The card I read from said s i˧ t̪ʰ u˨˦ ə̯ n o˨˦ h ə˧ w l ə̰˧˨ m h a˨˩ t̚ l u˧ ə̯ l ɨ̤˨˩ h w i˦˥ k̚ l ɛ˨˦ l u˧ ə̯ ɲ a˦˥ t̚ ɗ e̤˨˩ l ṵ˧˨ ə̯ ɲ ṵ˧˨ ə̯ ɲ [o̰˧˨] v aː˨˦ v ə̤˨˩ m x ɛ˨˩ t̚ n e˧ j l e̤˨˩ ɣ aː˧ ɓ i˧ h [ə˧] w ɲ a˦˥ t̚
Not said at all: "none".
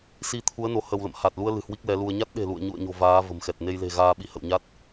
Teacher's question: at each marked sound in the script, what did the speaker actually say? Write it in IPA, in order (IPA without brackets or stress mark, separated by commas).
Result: o̤˨˩, ə̰˧˨